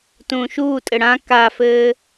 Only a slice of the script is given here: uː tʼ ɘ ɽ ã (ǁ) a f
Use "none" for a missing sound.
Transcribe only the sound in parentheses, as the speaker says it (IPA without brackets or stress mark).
k